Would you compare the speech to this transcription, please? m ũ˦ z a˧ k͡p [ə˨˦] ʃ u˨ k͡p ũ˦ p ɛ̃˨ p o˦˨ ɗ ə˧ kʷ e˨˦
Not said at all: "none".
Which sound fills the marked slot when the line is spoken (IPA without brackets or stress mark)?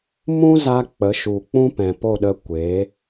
ə˨˦